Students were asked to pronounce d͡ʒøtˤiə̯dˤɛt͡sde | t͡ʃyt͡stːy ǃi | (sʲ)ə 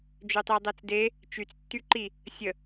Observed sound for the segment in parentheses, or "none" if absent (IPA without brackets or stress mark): sʲ